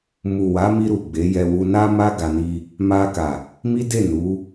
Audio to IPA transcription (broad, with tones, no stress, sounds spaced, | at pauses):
m u˨ w a˨˦ m i˧ ɾ u˨ ɡ͡b e˨˦ j ɛ˧ w u˧ n a˦ m a˦ ɡ a˧ n i˦ | m a˧ k a˨ | m i˦ d e˦˨ n u˨˦